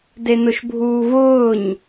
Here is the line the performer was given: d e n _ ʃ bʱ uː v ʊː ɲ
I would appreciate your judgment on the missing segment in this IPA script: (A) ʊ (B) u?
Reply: A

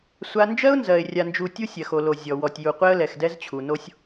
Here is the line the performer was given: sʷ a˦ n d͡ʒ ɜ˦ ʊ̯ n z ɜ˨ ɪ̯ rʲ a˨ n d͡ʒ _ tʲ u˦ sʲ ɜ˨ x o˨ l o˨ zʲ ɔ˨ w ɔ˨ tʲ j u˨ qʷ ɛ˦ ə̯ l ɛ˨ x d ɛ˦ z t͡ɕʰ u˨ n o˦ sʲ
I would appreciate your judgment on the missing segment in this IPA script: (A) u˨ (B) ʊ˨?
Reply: A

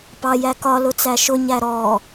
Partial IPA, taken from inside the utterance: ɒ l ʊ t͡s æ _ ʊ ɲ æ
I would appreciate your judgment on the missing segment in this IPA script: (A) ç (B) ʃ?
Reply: B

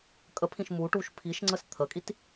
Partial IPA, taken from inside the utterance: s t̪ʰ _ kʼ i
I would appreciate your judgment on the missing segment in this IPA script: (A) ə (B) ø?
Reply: A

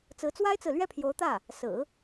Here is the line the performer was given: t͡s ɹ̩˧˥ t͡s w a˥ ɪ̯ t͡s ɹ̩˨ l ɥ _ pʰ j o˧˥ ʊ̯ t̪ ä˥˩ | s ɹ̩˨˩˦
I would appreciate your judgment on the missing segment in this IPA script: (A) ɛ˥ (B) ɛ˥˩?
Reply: B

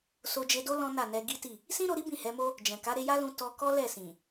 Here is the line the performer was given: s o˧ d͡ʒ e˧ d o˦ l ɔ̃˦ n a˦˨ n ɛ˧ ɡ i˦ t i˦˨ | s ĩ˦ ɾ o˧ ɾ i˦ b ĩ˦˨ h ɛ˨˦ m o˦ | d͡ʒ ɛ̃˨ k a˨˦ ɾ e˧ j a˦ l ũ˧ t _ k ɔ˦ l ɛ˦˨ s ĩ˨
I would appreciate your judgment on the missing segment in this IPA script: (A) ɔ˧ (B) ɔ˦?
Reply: A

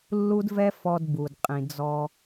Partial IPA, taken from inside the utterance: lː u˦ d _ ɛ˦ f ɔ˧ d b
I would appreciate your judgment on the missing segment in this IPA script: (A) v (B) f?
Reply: A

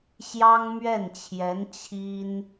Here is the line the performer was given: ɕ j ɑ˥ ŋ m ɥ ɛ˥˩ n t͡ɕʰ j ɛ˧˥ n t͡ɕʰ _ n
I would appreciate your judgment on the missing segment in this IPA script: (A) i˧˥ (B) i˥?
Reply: B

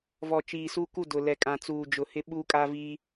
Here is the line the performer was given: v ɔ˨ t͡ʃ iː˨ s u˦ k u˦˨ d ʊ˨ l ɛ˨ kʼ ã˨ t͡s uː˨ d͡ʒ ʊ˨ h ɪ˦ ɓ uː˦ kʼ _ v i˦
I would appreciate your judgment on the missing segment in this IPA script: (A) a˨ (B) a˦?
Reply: B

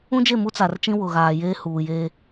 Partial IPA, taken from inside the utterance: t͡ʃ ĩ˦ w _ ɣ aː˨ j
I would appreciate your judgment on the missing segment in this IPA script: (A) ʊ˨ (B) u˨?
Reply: A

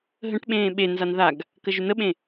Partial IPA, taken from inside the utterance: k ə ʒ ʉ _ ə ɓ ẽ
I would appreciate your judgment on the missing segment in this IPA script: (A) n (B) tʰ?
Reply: A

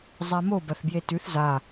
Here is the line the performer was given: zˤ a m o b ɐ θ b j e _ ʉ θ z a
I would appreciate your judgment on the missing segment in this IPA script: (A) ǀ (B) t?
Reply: B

